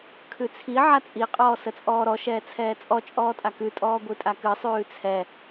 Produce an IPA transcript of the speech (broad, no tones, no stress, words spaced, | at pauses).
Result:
kʰʉt͡sʰi ʕat͡sʼi qʼɔːsət͡sʼɔːɾɔ ʃɛːt͡sʰɛːt͡sʼɔ t͡ʃʼɔːtʼakʉ tʼɔːɡʷitʼakɨ sˤʉːt͡sʰɛ